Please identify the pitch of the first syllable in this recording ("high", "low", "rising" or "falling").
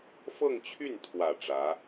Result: falling